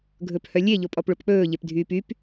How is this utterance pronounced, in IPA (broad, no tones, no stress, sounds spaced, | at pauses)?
ɡʱ ɵ p h œ lʲ e ʎ o pʼ ɔ p ɭ o p k͡p ɵː ʎ e p dʱ yː p y p